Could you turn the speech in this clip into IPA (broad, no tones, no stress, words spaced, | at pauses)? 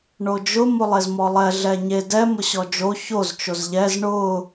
ɳod͡ʒʊ molˠezmɔlˠɛ ɮɛɲe dɛ mʊɕɔd͡ʒo çoz t͡ʃozʎɛz ɳʊ